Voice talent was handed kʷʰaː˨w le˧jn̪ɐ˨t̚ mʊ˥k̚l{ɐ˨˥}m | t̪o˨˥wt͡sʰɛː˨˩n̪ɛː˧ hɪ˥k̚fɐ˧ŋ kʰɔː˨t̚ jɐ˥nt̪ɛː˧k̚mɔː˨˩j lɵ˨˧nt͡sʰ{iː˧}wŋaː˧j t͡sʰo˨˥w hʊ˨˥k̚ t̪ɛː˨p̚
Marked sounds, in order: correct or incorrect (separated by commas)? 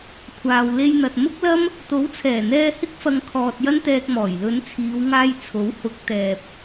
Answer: incorrect, incorrect